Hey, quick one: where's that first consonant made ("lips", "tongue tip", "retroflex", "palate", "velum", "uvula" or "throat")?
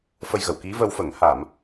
lips